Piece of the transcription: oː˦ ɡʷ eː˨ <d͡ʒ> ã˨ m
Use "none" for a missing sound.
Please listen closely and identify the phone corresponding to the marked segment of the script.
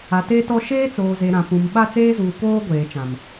t͡ʃ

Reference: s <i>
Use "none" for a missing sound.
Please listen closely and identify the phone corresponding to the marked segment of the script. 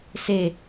e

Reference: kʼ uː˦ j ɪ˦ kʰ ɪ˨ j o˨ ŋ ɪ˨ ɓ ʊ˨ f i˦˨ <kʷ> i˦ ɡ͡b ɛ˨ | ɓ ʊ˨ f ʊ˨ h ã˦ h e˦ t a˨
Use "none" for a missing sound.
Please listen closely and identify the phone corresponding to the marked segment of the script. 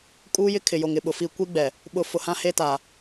kʷ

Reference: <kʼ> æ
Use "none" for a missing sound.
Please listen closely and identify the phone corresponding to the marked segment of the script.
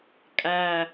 kʼ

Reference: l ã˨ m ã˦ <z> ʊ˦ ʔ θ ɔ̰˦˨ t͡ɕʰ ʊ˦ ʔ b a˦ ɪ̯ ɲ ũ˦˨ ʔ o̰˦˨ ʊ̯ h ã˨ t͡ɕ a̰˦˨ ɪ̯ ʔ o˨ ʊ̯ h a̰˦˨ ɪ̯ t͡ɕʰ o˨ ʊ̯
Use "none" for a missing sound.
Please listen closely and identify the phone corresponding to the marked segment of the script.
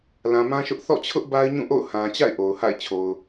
ʃ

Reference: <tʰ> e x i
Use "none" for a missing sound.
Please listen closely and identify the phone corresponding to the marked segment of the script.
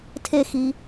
tʰ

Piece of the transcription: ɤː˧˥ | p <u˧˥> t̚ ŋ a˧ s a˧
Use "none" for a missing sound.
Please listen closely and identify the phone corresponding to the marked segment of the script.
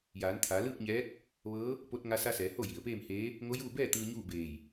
o˧˥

